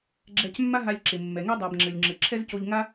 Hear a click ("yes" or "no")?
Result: yes